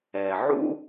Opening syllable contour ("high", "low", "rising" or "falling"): low